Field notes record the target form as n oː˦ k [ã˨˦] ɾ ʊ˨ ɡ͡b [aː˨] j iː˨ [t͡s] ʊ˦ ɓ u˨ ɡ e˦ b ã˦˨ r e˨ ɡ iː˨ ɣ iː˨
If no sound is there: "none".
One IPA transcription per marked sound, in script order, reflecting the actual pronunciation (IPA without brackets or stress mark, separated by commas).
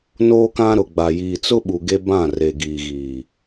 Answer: ã˦, a˨, t͡s